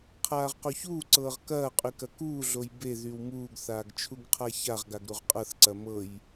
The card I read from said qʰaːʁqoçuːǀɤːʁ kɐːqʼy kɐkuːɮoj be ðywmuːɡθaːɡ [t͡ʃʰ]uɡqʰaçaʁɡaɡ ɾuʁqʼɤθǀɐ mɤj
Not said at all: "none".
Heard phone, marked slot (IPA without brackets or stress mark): t͡ʃʰ